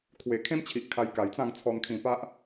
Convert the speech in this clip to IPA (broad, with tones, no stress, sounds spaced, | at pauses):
kʰ w e˨˩ kʰ ẽ˦ m t͡ɕʰ i˨ ʔ kʰ a˧ j k a˨˩ j t͡s ã˥˧ ŋ t͡sʰ ɔ˧ n kʰ ĩ˧ p a˦ ʔ